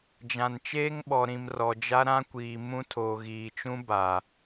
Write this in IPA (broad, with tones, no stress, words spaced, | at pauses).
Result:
d͡ʒã˨nt͡ʃeː˦ŋɓɔ˨ɾĩ˨m rɔ˨d͡ʒa˦ ɾã˦kʷiː˨ mũ˦tʰoː˨ ɣiː˨t͡ʃũ˦ba˨